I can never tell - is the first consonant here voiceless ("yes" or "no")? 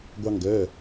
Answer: no